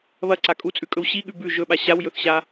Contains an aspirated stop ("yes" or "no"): no